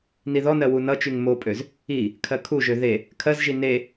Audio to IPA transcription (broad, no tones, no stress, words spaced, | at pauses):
niðɔnɜ wunʌt͡ʃyŋ mopʼøz | i | kʰɜkʰuʒø ðe | kʰɜzʒi ne